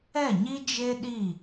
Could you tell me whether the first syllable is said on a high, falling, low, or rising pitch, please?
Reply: falling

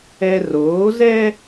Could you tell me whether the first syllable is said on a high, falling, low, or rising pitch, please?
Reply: high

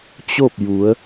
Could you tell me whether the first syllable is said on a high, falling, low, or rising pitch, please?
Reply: falling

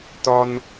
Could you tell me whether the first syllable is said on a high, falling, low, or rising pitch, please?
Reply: high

